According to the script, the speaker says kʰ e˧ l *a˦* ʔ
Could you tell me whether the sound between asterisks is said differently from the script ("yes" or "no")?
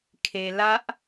no